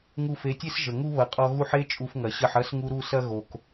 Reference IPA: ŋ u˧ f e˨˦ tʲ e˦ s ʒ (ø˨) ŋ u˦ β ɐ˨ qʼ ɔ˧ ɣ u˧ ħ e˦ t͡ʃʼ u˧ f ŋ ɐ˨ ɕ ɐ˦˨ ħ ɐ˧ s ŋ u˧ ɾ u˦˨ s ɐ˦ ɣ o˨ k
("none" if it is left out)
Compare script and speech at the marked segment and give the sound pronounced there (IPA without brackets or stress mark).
ə˨